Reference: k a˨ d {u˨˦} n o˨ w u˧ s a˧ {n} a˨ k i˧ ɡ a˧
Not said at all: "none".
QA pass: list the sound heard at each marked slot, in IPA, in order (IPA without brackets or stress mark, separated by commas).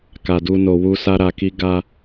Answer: u˧, ɾ